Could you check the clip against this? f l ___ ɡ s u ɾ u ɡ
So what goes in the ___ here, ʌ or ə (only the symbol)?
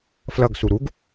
ʌ